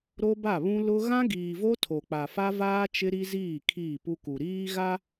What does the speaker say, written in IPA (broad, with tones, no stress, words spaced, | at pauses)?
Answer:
ɾo˦ba˦˨βũ˦ lʊ˦ ɣã˦ɡiː˨vo˦ tʰo˨k͡pa˨fa˦vaː˦ t͡ʃɪ˦ɾi˦ziː˦˨ kʰiː˦˨pu˦ku˨ ɾiː˦ɣa˦